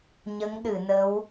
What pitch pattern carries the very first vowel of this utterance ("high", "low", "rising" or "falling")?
rising